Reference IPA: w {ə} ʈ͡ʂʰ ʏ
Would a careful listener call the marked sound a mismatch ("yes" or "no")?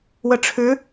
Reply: no